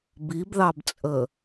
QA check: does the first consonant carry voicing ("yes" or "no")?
yes